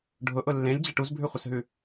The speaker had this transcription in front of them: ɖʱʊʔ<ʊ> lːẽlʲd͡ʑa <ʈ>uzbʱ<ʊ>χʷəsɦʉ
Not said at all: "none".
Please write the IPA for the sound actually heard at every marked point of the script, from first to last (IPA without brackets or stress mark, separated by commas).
ʊ, ʈ, ʉ